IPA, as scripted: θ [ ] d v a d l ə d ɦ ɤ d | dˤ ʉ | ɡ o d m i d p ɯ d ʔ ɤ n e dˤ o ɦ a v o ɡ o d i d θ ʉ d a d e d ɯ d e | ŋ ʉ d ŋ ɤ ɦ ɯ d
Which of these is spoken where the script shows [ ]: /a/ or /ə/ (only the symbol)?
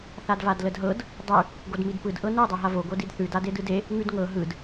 a